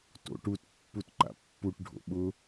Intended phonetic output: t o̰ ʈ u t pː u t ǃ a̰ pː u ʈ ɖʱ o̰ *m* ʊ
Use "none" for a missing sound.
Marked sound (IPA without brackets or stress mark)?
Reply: ɓ